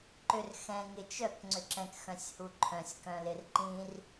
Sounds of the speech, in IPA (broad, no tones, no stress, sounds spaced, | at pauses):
ǃ ʏ r x ɛ̃ ŋ ɪ t͡ʃ œ k ŋ͡ǀ ʏ ǁ ɛ̃ k x œ̃ sʲ h u ǃʰ œ̃ sʲ k œ̃ l ɪ r ǃ ĩ r